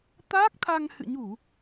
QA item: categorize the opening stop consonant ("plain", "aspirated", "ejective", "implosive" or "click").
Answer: plain